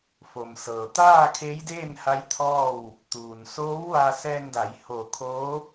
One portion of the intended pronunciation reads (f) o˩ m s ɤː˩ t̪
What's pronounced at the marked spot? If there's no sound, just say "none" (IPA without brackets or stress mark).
f